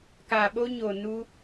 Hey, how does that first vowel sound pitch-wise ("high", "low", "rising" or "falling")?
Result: low